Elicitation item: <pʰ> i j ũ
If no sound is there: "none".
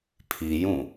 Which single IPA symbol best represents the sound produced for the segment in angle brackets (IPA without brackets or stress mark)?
pʰ